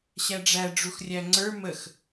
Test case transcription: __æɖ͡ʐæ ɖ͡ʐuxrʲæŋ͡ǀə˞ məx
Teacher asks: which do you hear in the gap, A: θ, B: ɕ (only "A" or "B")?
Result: B